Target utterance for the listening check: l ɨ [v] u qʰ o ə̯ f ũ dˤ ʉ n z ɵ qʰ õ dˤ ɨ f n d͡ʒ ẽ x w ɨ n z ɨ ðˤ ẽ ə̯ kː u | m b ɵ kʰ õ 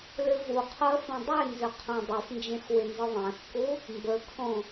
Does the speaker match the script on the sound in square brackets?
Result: yes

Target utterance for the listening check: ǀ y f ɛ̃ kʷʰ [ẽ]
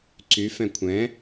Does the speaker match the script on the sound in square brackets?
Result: no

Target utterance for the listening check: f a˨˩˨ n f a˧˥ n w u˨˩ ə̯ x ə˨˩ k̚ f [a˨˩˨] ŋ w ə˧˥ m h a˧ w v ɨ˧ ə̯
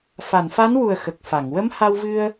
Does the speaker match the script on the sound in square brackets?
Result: yes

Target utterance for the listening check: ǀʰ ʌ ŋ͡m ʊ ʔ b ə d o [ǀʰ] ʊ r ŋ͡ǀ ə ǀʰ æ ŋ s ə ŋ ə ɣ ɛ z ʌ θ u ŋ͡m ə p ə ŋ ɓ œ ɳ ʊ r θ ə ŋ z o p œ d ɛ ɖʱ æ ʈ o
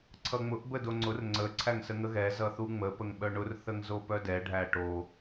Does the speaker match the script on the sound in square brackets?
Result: no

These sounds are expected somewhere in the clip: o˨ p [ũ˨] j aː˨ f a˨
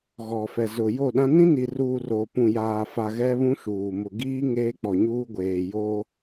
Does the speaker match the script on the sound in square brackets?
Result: yes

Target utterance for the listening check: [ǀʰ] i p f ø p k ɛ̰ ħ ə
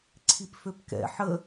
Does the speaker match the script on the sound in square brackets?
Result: yes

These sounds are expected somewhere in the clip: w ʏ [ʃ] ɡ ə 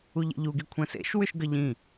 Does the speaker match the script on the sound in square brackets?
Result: yes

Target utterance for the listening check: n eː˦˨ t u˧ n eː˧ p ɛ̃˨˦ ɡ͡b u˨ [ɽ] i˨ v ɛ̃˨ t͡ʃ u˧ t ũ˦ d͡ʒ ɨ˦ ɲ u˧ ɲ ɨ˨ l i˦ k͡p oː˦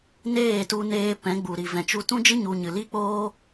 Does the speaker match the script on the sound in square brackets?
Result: no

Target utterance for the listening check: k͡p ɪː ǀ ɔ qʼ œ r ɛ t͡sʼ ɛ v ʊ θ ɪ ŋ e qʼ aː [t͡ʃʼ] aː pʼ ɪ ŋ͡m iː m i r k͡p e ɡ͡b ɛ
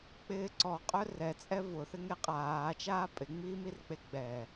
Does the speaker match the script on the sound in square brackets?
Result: no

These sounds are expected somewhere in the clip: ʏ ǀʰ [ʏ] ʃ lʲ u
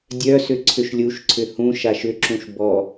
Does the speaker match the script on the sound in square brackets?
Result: yes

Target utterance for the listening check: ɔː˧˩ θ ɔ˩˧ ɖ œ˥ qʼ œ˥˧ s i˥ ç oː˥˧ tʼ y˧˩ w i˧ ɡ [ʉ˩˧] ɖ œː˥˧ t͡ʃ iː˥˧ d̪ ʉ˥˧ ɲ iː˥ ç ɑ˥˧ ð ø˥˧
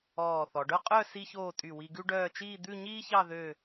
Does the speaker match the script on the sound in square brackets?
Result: no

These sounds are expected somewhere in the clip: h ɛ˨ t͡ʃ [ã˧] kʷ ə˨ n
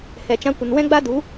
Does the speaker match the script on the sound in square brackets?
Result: yes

